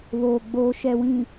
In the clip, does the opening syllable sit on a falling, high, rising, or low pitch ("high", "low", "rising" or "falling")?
low